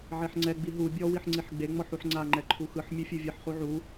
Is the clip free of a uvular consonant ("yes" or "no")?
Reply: no